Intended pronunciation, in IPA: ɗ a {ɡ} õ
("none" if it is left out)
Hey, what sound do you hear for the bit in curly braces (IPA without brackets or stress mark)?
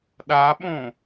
ɓ